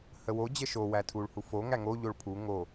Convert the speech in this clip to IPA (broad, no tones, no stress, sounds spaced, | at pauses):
h ə w o d͡ʑ ə ʃ o w æ tʰ u ɭ h u f o ŋ æ ŋ o ʎ o ɭ pʰ u ŋ o